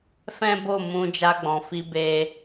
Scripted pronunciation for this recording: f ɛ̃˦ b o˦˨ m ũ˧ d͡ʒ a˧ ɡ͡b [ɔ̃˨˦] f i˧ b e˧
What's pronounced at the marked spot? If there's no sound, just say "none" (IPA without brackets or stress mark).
ɔ̃˨